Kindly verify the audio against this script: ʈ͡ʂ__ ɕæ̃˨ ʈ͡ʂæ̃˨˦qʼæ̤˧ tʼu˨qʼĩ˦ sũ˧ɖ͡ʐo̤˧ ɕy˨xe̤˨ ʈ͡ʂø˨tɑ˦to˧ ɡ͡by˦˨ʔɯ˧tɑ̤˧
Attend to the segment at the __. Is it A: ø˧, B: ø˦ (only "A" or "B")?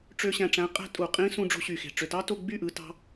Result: A